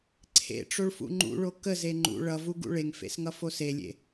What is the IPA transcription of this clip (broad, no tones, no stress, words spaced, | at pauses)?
ǀʰḛʈ͡ʂoɭfṵ ŋ͡ǃṵɭo kəze ŋ͡ǃṵ ɭʌvuɡṵ ɭeŋfḛsŋʌfo selʲḛ